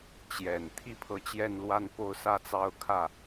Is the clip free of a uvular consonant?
yes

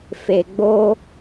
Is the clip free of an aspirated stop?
yes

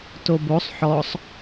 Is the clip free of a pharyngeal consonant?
no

